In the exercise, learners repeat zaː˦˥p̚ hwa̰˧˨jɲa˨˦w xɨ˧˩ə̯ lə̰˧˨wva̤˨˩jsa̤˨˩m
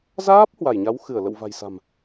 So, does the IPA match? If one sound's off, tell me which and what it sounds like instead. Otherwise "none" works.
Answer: a̰˧˨ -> a˧˩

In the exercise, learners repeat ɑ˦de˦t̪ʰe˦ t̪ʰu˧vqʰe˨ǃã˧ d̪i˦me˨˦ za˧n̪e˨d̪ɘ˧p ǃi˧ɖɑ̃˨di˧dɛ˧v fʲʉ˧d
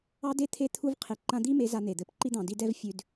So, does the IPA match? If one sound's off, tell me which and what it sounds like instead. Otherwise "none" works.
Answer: ɖ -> d̪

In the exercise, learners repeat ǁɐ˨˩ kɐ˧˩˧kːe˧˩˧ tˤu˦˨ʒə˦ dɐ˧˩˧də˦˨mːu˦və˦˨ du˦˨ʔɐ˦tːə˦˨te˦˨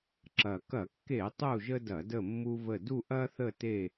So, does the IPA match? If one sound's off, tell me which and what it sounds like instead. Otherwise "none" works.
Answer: tː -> θ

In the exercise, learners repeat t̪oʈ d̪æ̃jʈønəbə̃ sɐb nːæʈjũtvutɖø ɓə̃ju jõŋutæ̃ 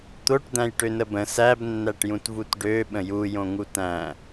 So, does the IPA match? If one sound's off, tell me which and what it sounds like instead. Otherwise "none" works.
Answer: ɐ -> æ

